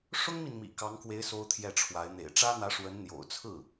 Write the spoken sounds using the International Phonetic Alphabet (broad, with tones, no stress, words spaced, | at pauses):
ʂʊ˥ŋmi˨nmḭ˨˩ kɑ˧˥ŋkwe˧˥ɪ̯ so˥ʊ̯t̪ʰjɛ˥˩ʈ͡ʂʰwa˧˥ɪ̯ n̪ḛ˨˩ɪ̯ʈ͡ʂä˥n̪ä˧˥ ʂwə˧˥n n̪jo̰˨˩ʊ̯t͡sʰɹ̩˥˩